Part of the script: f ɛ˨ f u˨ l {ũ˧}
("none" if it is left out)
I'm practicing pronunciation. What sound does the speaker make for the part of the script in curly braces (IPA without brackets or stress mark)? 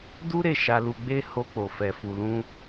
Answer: ũ˧